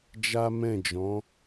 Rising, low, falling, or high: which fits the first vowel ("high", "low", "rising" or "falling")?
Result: high